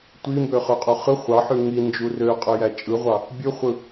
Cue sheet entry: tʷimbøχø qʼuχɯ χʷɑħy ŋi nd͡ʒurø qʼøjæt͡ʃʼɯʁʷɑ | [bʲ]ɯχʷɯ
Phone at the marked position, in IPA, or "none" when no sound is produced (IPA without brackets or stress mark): bʲ